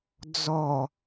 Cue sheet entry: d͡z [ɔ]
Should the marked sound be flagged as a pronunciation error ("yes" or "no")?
no